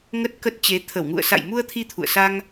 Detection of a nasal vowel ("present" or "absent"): absent